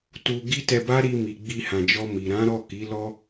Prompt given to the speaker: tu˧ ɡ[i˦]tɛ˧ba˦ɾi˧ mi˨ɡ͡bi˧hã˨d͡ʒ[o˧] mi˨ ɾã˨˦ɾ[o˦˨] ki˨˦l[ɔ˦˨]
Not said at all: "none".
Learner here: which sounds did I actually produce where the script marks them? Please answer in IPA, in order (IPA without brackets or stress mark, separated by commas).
i˦, ɔ˧, ɔ˦˨, ɔ˦